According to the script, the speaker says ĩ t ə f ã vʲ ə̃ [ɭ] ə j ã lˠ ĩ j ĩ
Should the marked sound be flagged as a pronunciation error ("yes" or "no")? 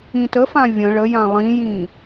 no